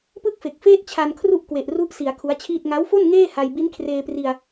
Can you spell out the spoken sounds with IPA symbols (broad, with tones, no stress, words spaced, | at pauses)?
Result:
pɯ˥˩k̚fe˨˩k̚feː˥˩t̚ t͡ɕʰa˧nkʰru˥˩ʔkwe˨˩ʔ ru˦˥ʔsi˩˦a̯ kʰu˦˥a̯t͡ɕʰiː˥˩t̚ ŋa˦˥wfo˥˩n ŋeː˥˩ha˧j bi˦˥nkʰreː˧pri˧a̯